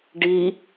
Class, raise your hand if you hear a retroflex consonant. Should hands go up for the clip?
yes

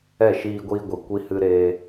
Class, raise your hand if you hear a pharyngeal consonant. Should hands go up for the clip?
no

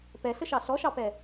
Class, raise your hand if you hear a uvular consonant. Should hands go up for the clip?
no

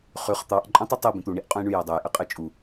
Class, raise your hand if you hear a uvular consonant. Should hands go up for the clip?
yes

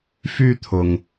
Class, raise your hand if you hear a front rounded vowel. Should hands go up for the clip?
yes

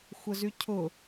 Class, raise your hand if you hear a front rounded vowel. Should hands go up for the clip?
yes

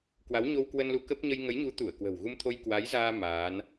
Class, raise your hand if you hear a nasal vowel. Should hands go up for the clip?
no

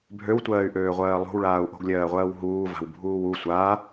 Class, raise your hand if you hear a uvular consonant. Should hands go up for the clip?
yes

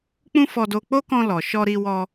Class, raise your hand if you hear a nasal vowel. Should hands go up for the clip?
yes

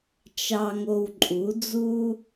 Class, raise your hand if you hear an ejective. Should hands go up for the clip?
yes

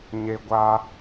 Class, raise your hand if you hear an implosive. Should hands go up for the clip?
no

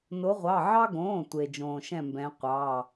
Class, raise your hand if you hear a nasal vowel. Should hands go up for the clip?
yes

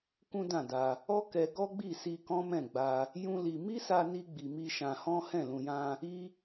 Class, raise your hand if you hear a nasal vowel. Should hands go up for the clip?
yes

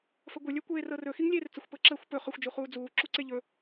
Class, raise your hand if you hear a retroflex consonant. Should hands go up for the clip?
no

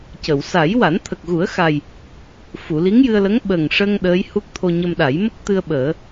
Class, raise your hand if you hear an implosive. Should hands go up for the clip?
yes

